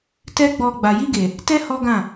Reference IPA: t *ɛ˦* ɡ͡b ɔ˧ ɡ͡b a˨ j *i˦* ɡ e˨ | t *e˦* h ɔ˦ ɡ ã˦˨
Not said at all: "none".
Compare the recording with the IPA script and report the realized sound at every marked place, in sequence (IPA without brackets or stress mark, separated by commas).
ɛ˦, i˧, ɛ˦